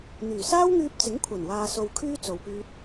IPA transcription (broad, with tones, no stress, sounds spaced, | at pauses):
n̪ yː˨˩ s aː˥ w ŋ yː˧ p̚ t͡s ɪ˨˥ ŋ kʷʰ ɐ˨˩ n w aː˨ s o˨ w kʰ yː˥ t͡s o˨ w p yː˧ t̚